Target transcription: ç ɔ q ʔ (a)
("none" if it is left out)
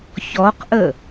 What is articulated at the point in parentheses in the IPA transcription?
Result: ə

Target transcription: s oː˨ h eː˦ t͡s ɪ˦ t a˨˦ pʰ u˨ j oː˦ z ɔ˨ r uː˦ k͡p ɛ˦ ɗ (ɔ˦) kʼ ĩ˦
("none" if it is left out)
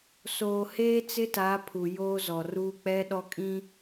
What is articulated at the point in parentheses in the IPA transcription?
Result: ɔ˦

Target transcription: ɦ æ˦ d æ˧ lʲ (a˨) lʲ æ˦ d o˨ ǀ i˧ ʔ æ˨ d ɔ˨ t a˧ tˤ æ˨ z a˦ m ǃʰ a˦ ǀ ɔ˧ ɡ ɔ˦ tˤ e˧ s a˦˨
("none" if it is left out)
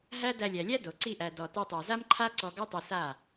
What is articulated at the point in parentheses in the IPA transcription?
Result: æ˨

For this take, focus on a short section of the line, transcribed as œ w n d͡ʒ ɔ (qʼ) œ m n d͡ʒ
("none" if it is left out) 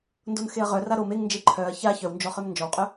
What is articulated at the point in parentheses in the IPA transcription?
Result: χ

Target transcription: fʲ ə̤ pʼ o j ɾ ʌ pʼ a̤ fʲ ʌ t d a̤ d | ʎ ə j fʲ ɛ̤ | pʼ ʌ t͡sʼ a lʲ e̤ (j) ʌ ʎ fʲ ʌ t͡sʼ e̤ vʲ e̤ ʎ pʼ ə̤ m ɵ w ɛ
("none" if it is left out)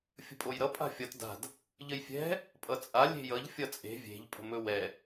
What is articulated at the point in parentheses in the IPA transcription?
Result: j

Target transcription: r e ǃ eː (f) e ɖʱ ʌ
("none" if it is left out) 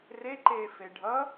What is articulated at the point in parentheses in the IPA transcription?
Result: f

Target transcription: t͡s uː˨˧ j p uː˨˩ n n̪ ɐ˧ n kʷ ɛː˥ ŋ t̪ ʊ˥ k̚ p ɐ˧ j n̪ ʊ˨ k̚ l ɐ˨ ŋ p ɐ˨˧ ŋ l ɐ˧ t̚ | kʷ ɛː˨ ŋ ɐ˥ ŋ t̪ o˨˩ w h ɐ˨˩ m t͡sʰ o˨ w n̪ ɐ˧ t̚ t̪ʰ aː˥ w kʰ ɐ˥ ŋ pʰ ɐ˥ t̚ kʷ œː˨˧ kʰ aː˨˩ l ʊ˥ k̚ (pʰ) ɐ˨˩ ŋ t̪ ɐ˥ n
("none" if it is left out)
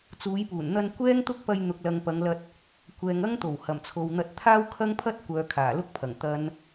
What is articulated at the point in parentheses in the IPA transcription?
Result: pʰ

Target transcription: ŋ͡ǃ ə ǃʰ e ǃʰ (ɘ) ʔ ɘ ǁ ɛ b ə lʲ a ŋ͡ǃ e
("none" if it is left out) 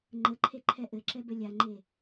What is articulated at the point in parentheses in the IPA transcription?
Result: ɛ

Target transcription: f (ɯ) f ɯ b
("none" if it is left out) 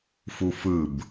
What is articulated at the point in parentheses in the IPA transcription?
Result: u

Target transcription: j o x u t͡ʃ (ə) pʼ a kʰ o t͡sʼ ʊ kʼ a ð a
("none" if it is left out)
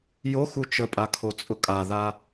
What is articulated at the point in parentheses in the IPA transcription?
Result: ə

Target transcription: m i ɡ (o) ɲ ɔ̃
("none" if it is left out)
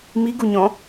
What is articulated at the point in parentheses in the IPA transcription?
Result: u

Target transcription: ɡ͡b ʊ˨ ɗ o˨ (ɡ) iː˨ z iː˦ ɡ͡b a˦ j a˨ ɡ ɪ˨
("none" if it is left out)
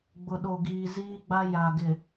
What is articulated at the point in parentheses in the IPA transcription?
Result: ɡ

